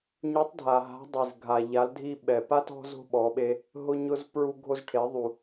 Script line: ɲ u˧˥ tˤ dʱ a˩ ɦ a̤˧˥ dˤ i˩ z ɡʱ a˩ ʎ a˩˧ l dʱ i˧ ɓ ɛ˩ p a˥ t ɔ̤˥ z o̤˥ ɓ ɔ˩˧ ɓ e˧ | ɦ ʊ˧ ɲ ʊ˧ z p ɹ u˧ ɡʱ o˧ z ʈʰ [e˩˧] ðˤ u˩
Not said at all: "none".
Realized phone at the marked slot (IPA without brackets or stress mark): e˩˧